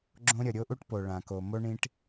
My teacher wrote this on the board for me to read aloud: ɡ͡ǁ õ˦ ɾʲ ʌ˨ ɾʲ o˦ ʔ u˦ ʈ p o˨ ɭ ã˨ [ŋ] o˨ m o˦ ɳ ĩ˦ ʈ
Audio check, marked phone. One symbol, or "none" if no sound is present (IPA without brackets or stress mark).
k